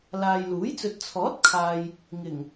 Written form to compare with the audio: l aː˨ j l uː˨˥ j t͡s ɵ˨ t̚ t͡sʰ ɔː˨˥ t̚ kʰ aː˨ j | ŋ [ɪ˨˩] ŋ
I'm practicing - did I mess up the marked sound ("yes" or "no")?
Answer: no